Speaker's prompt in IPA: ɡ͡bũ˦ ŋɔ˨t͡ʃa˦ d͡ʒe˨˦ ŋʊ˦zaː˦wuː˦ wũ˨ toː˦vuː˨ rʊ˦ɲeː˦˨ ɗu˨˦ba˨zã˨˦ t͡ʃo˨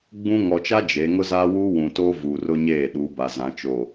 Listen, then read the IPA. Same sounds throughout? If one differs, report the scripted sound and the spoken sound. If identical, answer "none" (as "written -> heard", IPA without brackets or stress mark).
none